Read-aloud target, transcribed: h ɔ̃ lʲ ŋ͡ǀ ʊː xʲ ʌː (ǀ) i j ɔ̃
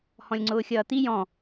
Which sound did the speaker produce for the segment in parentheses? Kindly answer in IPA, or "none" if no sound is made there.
t̪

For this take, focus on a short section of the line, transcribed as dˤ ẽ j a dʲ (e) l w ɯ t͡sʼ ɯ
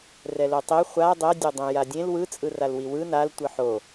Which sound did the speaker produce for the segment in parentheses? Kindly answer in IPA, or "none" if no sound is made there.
ẽ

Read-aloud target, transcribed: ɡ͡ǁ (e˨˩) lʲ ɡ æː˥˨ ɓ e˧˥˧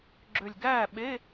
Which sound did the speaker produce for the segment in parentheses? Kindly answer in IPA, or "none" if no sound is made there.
ø˨˩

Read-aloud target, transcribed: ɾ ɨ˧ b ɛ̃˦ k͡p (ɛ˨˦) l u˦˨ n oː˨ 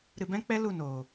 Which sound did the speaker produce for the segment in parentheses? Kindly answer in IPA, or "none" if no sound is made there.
ɛ˦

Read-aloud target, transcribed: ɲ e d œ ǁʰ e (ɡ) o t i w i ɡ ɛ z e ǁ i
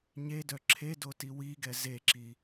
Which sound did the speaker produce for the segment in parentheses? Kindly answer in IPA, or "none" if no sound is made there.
d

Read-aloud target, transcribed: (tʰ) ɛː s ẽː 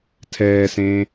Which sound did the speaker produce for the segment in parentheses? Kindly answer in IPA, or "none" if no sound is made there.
tʰ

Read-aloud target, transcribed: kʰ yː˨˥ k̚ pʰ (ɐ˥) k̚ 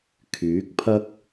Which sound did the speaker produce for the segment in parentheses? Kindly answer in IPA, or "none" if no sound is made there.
ɐ˥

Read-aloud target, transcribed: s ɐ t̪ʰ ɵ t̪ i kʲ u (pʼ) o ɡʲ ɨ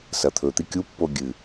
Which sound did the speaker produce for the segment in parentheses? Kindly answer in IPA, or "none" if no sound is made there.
pː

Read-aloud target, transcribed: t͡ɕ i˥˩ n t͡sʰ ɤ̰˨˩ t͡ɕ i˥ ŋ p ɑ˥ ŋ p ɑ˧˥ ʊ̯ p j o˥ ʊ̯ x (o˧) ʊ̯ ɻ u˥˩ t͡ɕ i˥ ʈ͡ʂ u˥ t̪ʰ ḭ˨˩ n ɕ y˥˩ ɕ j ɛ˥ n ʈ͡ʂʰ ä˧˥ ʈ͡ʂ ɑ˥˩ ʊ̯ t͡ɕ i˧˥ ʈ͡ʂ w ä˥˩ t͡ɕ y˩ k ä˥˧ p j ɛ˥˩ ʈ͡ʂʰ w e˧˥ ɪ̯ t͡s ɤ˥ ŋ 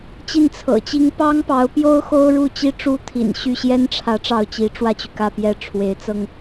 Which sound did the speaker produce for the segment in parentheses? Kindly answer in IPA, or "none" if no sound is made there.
o˥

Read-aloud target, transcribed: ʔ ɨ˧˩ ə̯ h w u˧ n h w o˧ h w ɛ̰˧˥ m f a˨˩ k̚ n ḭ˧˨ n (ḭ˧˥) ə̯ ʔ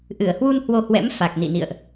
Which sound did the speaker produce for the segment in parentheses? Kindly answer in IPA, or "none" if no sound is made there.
ḭ˧˨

